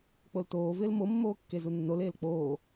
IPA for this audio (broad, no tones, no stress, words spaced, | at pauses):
k͡poltoːvɪːl mo mːoːkːezunːol eːlk͡poː